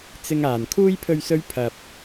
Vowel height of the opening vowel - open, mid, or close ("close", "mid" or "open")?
close